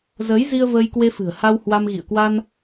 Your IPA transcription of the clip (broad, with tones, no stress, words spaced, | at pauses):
zəː˨˦jzi˧ə̯ vəː˧jkwe˧fɨ̤˨˩ə̯ha˧w hwa˧m ɣḭ˧˨ə̯ kwa˧n